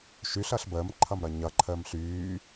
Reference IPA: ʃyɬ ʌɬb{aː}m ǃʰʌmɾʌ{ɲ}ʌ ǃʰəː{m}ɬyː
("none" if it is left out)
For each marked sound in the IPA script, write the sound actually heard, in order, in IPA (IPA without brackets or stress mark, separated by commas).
əː, ɲ, m